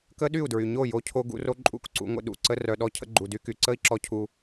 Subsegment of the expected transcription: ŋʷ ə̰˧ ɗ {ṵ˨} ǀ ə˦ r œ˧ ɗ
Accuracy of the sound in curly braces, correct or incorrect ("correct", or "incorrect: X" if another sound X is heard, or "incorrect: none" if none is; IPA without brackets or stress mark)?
correct